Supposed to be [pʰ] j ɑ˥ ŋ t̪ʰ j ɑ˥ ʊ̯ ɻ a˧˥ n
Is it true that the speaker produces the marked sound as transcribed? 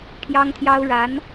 yes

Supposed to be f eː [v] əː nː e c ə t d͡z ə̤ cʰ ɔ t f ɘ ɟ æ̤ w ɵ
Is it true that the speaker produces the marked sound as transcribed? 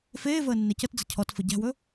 yes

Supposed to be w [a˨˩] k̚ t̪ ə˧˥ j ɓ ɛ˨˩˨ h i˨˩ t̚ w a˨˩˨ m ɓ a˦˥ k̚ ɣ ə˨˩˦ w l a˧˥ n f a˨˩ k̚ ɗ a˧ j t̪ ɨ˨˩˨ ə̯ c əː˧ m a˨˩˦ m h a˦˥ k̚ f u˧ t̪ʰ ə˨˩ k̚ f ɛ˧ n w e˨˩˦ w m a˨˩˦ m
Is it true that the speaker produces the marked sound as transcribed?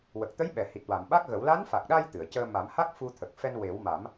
no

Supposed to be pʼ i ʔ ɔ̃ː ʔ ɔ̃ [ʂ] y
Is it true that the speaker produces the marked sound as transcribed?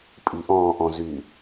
no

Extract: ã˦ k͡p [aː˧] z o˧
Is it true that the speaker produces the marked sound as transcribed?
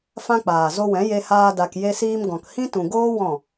no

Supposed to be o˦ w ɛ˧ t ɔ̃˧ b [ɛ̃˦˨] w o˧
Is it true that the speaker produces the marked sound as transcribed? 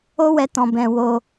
no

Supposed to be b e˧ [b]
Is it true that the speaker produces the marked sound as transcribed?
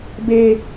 no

